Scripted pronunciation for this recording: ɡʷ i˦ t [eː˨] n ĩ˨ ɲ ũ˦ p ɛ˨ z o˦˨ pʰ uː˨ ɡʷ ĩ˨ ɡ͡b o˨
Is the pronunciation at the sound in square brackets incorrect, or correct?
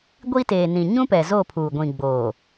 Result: correct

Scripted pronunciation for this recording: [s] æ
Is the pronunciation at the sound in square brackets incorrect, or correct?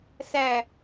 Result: correct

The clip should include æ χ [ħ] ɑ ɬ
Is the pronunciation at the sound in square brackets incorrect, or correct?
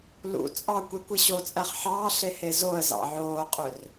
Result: correct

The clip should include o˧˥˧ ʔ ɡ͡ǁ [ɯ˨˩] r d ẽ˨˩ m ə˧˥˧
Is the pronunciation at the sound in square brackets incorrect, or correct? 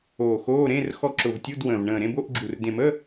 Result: incorrect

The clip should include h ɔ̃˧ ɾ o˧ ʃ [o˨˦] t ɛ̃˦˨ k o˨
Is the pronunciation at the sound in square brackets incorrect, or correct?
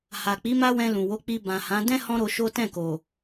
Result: incorrect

